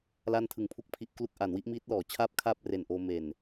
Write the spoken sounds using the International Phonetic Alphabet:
l a˥˩ n tʰ ɯ˨˩ ŋ pʰ u˥˩ k̚ pʰ i˦˥ ʔ k l u˥˩ k̚ ʔ a˩˦ n w i˥˩ ʔ m iː˦˥ t̚ l ɔː˩˦ t͡ɕʰ aː˥˩ p̚ kʰ aː˥˩ p̚ r e˨˩ n ʔ oː˧ m e˨˩ n

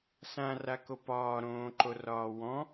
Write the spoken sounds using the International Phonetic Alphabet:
s ã r a k o p ɒː ɾ õː ǃ o r ɒː w ɔ̃

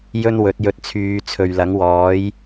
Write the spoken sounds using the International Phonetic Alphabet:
j ɵ˥ n w ɵ˨˥ t̚ j ɵ˧ t̚ t͡sʰ yː˨˧ t͡sʰ ɵ˨ ɥ l ɐ˨˥ ŋ w ɔː˨˥ j

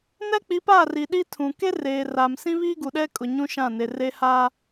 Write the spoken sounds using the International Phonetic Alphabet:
n ɛ˦ k͡p i˨˦ p aː˦˨ r i˨ ɗ i˦ tʰ ũ˨ k e˦ r eː˨ r a˨ m s ĩ˦ β iː˦ ɡ u˨ ɗ ɛ˦ kʼ ʊ˨ ɲ ũ˦ ʃ ã˦˨ n e˨ r e˦ h a˦

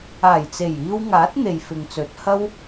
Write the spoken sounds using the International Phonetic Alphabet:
aː˨˩ j t͡s e˨˩ j iː˧ w ŋ aː˨˥ t̚ n̪ e˨ j f ɪ˨ ŋ t͡s ɵ˨˥ t̚ h ɐ˧ w

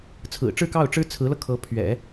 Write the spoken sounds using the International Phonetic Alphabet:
t͡sʰ ɹ̩˨˩ ʈ͡ʂ ɻ̩˥˧ k ɑ˥˩ ʊ̯ ʈ͡ʂ ɻ̩˥ t͡sʰ ɹ̩˧˥ l ɤ˧ kʰ ɤ˧˥ pʰ ɥ ɛ̰˨˩˦

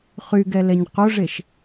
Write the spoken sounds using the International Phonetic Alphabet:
χ y ɡ ɛ l ɛ ɲ q o ʐ e ʃ

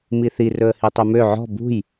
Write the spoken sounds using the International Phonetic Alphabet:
m i θ i r ɵ ə̯ h i tˤ ʉ m ø ʕ ɔ̤ b ṳ j

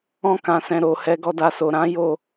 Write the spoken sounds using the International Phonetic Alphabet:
ɔ̃˦ k ã˧ s ɛ̃˧ ɾ o˨ h ɛ˧ ɡ ɔ˧ d a˧ s o˨ ɾ ã˨˦ j o˦˨

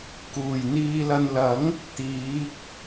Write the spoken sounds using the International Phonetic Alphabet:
k uː˨˩ j n̪ iː˨ l ɐ˨ n l ɐ˨˥ ŋ | t̪ iː˨˥ k̚

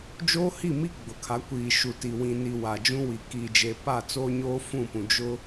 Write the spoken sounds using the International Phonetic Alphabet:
d͡ʒ oː˦ h i˦˨ m i˦ ɡ͡b ʊ˨ kʰ a˨˦ kʷ iː˨ ʃ u˨ t i˨ w ĩ˨ n i˨ w a˨ d͡ʒ ũ˦ w i˨ k iː˨ d͡ʒ e˨ p a˦˨ t͡s oː˦ ɲ oː˦ f ũ˦˨ p ũ˨ d͡ʒ ʊ˦

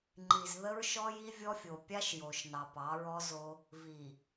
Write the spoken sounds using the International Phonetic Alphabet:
ŋ͡ǃ i˨ z ð ə˦ ɹ ʃ ɔ˦ j i˦ vʲ ɔ˦ fʲ o˨ pʲ a˦ ʃ j o˨ ʃ n ɑ˨ p ɑ˨˦ ɹ ɔ˦ z o˦ | v i˨

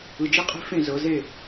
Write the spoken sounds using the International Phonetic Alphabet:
ɯ˨ d͡ʒ i˦ qʼ e̤˦ f ẽ˦˨ z ɤ˨˦ z e˦˨

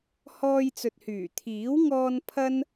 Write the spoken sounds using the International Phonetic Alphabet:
h ɔː˧ j t͡s ɵ˨ t̚ h yː˨˩ t̪ʰ iː˨˥ w ŋ ɔː˧ n pʰ ɐ˥ n

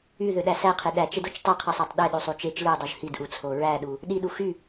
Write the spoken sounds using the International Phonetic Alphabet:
y ð ø ɗ æ s æ qʰ e ɗ æ t͡ʃ e d o t͡ʃ tˤ e qʰ ɯ sˤ ɑ tˤ ɗ e ɗ u sˤ u t͡ʃ e t͡ʃ l ɯ dˤ u ʒ h i d ʔ u t͡sʰ o ɹ æ ɗ u | ɗ i ɗ u x y

